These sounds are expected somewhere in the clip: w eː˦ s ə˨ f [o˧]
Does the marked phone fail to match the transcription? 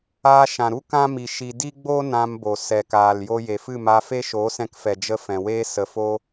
no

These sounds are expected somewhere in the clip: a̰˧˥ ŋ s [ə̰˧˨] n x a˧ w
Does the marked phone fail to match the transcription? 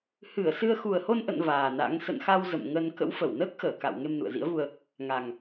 no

